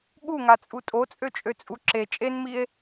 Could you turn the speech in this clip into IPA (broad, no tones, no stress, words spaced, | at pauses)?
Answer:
ɠuŋat͡sʼu tʼot͡sʼøt͡ʃʼøt͡sʼu ǁe t͡ʃʼenmie̯